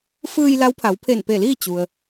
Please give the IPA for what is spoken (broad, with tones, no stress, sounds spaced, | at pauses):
f ɯː˧ j l a˧˥ w pʰ a˩˧ w pʰ e˧˩ n p e˧˩ l iː˥˨ t͡ɕ u˩ ə̯